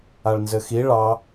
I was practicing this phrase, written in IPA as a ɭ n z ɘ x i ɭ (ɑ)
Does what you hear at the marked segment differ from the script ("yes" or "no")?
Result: no